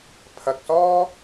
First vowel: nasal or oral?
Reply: oral